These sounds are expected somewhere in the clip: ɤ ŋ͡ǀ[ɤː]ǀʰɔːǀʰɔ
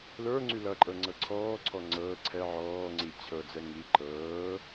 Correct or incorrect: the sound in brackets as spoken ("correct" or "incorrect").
incorrect